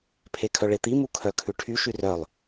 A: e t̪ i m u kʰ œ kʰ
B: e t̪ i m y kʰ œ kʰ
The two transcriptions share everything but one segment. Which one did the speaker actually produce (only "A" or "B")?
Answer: A